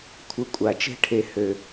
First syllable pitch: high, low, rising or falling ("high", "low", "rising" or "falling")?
rising